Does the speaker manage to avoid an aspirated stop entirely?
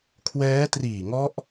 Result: no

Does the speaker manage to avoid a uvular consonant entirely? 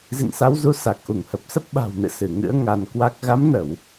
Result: yes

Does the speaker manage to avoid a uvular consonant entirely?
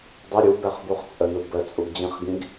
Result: no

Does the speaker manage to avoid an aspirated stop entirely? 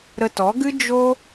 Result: yes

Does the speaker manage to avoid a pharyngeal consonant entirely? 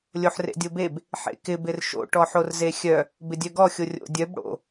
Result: no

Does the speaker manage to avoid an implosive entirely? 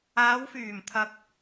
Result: yes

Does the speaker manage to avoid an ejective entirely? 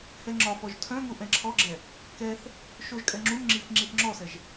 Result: no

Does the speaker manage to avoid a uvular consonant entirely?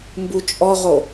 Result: no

